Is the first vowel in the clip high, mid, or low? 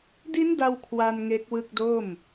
high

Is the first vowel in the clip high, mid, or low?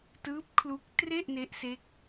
high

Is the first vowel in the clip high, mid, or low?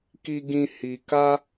high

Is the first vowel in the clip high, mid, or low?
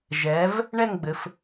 mid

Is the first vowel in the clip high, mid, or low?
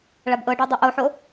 low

